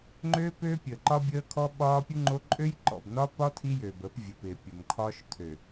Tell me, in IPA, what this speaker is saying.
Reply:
ŋ͡ǃ øː˦ p øː˦ pʲ əː˨ ǃ ɒ˦ bʲ əː˦ kʰ ɔ˦ ɓ ɒː˦ pʲ u˦ ŋ͡ǃ o˦ ǃʼ ø˦ j ǃ ɔ̰˨ b n ɒ˦ p ɒ˦ tʰ i˦ j øː˨ b əː˨˦ p vʲ ə˨ p ɪː˨ pʲ o˨ m kʰ ɒː˦ ʃ tʰ ø˨

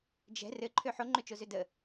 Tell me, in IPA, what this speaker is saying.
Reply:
d͡ʒ ɛ̤ r ɘ ǃʰ ø ħ o ŋ͡ǃ ø t͡ʃ o z ø d ə

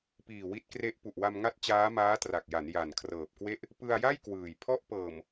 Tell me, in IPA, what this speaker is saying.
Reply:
p iː˨˩ w i˦˥ t̚ k r e˦˥ ʔ p u˨˩ ʔ w a˧ m ŋ a˦˥ t̚ t͡ɕ aː˦˥ m aː˦˥ t r a˨˩ k̚ j a˩˦ n j a˨˩ n kʰ r ɤː˨˩ p̚ k w e˥˩ ʔ | p ɯ˧ a̯ j a˥˩ j k w ɯː˨˩ j pʰ ɔ˥˩ ʔ p ɤː˨˩ m

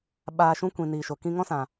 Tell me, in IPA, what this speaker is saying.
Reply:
ɓ aː˧ ʃ ũ˦ kʷ ĩ˨ n iː˨ ʃ o˨ k ĩ˧ ŋ ɔ̃˦ s ã˨

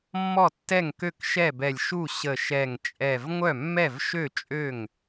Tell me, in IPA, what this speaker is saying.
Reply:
mː ɔ˥˩ tː ɛ˥˩ ŋ k ø˥˩ k ʃ ɛ˥˩ b ɛ˧˩ lʲ ʃ u˥˩ ɕ ə˧˩ ʃ ɛ˧˩ ŋ t͡ʃʼ ɛ˧˩ v ŋʷ œ˥˩ mː ɛ˥˩ v ʃ ø˥˩ t͡ʃʼ ø˥˩ ŋ

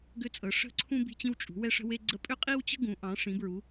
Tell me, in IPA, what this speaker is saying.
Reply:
ɡ ʏ˦ t͡sʼ ɤ˨˦ ʂ ə̤˦ ǀʰ ũ˦ b i̤˦ t͡ɕ ĩ˦ w t͡ʃʼ ṳ˨˦ w ɛ˦ ʂ ə̤˦ w e˦ ɡ͡ǀ ə˦ pʼ ʏ˦ qʼ i˦ w t͡ɕ ə̤˦ ɡ ũ˨˦ ʔ ɑ̃˨˦ ʂ ĩ˨˦ b ɹ u˨˦

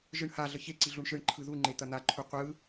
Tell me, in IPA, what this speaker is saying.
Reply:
ʒ ɯ ɳ h a ɮ ə ç e ǀ i ɮ u ɳ ʃ ɯ ɳ ǃʰ ɯ ð u ŋ͡ǃ e t̪ ɐ n̪ a ǃʰ u qʷ ɯ

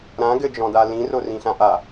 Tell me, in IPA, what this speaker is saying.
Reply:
ɾ ã ɡ ɘ d͡ʒ ɔ̃ d a l ĩ r o r ĩ ɬ ã ʔ a

